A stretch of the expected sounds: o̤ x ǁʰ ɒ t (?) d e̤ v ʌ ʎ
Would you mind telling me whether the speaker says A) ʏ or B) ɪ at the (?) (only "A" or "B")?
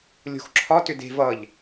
A